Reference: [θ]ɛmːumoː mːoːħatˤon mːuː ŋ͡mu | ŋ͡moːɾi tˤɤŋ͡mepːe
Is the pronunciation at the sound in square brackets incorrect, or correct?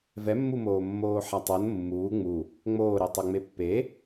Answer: incorrect